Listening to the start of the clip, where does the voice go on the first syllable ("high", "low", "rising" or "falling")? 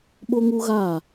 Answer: high